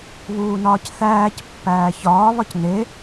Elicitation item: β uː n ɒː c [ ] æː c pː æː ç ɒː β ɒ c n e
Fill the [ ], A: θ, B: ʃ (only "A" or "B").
A